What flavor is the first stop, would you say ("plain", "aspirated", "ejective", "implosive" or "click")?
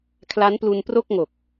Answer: aspirated